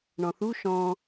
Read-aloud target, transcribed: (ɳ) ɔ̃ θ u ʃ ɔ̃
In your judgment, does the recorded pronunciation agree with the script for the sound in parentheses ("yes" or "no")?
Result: yes